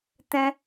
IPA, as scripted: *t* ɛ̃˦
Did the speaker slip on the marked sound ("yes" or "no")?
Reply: no